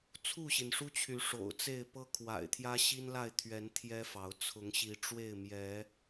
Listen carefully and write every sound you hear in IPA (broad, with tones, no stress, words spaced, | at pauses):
t͡sʰu˥˨ɕi˩nʂu˦t͡ɕʰy˨˦ ʂo̰˨˩ʊ̯t͡se˥˨ɪ̯ pɤ˦kʰwa̰˨˩ɪ̯t̪ʰjä˦ ɕi˦nla˥˨ɪ̯t̪ʰɥɛ˨˦n t̪ʰjɛ˦fɑ˨˦ʊ̯ t͡sʰʊ˨˦ŋɕi˨˦ʈ͡ʂwe˥˨ɪ̯ mjɛ˨˦